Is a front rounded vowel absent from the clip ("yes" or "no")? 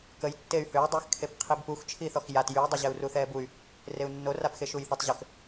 no